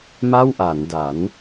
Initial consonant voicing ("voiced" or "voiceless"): voiced